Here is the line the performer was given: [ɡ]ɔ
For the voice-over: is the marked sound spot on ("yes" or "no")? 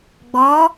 no